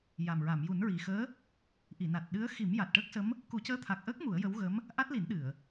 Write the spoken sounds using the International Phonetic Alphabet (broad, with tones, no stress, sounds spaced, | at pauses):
j a˨˩ m ɹ a˨˩˨ m j u˨˩˦ n ɹ i˨˩ x əː˧˥ | ʔ i˨˩˨ n a˨˩ t̚ ɗ ɨ˧˥ ə̯ x i˨˩˦ m j a˨˩ t̚ ʈ əː˦˥ k̚ s ə˧˥ m | k u˨˩˦ c əː˧˥ t̪ʰ a˨˩ k̚ ʔ əː˦˥ k̚ m u˨˩˦ ə̯ j ə˧˥ w ɣ ə˧˥ m | ʔ a˦˥ t̚ l i˨˩˦ n ɗ ɨ˨˩˨ ə̯